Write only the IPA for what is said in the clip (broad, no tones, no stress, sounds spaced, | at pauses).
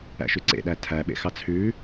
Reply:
æ̰ ʃ y ǀ ḛ ɗ æ tʰ æ ɓ ḛ x ɑ t͡sʰ ʉ